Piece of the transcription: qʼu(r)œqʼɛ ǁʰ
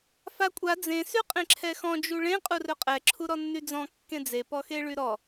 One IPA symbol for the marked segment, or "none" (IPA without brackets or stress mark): r